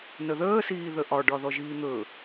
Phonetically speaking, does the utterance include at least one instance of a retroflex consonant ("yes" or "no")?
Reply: yes